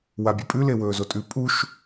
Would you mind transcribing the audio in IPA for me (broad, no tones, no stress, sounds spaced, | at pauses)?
w a bʲ ɵ pʼ ʉ l e w ɵː z o tʼ ʉ pʼ u ʃ